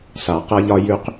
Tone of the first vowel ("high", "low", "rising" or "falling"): low